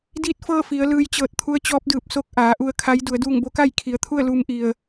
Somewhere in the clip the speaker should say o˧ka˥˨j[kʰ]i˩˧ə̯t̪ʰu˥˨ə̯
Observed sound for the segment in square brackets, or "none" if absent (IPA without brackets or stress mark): kʰ